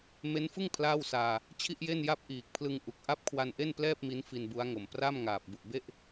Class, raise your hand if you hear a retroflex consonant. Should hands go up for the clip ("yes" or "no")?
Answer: no